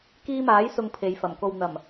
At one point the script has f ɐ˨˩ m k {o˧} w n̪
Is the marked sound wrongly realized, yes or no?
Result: yes